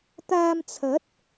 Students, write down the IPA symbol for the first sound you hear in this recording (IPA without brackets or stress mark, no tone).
t̪